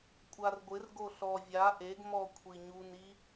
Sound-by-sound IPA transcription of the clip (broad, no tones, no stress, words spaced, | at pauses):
kʷʼarɡʷɪr ɡoɬɔ vʲa ʔeɡmɔ kʷʰiɲuni